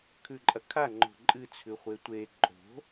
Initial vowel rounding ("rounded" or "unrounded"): rounded